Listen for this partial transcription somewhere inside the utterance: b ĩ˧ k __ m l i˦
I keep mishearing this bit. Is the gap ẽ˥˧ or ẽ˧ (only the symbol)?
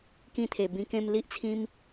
ẽ˥˧